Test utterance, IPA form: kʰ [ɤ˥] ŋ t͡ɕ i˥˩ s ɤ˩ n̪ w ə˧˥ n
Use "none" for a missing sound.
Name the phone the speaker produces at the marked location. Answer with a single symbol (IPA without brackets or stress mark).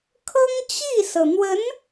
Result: ɤ˥